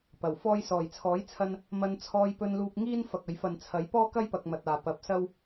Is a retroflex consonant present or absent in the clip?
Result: absent